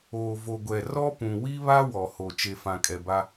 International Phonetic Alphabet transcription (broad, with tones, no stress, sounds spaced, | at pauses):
oː˨ v o˨ ɡʷ ɛ˨ r ɔ˦ p ũ˨ w i˦ β a˦ w ɔ˨ h o˨ t͡ʃ e˨ f ã˨ kʼ ɛ˨ b a˦